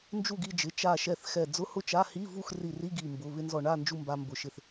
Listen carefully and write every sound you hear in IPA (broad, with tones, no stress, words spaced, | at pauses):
nd͡ʒu˥˨ɡi˧d͡ʒɪ˩˧˩ t͡ʃa˧˩ ʃɛ˧˩θxɛ˧˩ d͡zʊ˧˥˧hʊ˥˨t͡ʃa˧˥˧ hi˧˥˧vu˥˨xri˧˩ri˧˥˧ ɡi˧˩mbʊ˩˧˩ βɪ˧nzɔ˧˩ɳa˥˨ nd͡ʒu˥˨mba˧ mbʊ˧˩ʃɪ˧θ